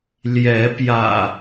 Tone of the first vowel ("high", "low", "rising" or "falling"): rising